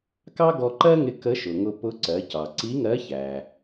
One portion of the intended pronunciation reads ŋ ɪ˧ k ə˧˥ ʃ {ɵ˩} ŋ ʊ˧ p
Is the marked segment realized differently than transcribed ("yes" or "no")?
yes